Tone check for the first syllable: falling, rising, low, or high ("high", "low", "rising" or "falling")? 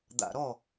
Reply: low